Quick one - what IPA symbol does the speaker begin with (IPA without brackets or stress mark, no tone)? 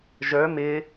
ʒ